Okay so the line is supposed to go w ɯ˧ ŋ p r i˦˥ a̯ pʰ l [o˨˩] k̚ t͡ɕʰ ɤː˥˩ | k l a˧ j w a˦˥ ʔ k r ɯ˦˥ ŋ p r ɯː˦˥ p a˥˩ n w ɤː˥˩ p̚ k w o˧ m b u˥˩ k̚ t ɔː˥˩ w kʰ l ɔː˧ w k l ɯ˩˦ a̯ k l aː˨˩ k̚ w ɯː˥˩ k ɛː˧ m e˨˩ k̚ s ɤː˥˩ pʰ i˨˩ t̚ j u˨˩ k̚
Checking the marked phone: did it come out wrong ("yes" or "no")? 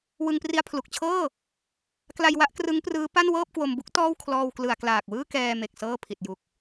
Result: yes